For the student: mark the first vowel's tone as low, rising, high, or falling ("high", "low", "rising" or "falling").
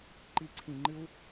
low